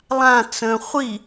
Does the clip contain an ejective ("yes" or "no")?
no